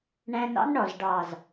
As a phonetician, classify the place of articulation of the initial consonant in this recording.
retroflex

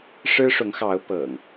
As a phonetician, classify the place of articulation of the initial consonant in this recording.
retroflex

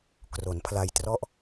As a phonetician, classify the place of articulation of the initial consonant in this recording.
velar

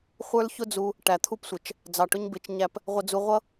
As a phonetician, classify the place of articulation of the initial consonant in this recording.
uvular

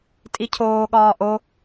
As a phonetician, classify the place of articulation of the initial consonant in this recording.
alveolar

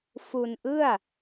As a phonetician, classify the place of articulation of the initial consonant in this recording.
labial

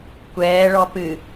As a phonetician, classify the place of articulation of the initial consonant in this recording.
velar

